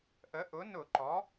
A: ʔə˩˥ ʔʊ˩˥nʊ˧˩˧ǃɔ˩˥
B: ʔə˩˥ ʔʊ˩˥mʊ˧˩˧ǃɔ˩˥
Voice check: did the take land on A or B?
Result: A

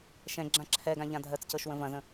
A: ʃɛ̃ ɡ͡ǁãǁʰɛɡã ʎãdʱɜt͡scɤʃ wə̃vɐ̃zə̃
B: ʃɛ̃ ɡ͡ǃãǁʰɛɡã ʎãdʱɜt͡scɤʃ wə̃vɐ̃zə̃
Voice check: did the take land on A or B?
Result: A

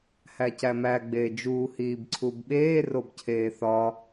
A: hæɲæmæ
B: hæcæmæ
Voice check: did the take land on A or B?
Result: B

